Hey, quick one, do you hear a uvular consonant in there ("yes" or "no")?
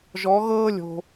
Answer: no